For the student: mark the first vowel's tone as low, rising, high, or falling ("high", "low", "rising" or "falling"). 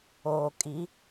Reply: low